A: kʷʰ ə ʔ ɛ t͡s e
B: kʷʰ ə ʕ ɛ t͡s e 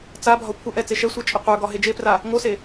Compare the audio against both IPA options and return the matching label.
A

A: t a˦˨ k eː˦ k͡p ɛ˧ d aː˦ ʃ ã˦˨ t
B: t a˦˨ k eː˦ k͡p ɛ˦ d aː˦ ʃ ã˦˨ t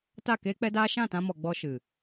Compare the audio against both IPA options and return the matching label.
B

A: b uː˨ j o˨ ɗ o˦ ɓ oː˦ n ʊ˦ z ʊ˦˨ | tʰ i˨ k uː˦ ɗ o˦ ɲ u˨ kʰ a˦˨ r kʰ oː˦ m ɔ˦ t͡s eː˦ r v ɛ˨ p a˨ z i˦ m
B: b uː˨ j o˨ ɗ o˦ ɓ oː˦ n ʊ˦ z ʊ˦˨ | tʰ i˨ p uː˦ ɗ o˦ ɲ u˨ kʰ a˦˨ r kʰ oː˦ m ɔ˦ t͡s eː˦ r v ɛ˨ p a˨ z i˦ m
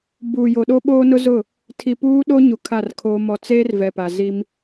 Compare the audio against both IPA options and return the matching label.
B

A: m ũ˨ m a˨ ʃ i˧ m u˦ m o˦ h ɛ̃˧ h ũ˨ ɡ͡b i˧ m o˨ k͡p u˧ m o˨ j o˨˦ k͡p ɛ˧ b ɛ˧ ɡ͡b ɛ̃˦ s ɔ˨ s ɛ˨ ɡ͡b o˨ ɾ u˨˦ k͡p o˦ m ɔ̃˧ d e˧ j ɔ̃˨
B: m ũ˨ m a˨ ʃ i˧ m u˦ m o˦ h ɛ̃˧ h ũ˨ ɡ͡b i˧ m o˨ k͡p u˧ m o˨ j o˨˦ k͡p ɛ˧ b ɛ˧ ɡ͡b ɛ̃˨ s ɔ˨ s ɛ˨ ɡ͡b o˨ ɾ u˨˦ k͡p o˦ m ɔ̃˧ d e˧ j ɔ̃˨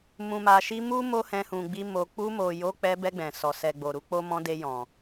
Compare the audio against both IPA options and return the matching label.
B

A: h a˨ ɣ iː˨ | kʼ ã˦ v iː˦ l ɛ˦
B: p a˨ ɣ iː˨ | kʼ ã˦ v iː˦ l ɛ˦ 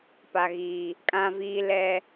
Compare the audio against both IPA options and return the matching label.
B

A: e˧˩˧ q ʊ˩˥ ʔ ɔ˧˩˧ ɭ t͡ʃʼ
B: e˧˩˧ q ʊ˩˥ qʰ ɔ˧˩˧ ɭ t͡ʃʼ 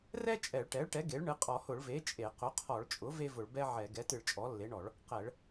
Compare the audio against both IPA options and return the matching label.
B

